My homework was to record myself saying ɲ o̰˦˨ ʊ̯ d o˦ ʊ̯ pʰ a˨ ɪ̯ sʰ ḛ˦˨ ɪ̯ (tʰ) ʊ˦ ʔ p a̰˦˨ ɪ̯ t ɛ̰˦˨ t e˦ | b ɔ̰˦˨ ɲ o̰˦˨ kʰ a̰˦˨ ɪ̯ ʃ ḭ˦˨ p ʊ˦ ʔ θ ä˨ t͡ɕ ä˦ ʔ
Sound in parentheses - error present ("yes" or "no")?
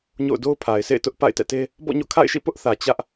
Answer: yes